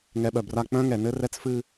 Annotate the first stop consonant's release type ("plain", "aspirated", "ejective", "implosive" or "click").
implosive